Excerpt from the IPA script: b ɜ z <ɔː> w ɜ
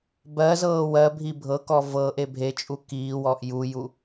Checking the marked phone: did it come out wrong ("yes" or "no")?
yes